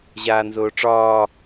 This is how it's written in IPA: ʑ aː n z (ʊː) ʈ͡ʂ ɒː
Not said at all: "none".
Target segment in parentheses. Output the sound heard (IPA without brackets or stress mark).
ʊː